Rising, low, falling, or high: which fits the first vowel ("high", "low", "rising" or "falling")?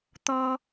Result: high